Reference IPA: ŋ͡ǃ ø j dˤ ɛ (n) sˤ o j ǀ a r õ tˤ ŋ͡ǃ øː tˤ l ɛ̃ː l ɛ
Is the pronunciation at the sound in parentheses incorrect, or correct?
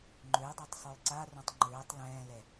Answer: incorrect